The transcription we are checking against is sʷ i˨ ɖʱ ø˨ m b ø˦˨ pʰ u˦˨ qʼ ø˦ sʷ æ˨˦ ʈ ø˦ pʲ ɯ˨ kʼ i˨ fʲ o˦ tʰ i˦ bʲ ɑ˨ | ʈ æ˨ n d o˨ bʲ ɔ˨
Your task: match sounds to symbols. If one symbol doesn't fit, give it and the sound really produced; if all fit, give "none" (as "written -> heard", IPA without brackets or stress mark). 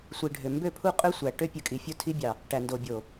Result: ɔ˨ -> o˨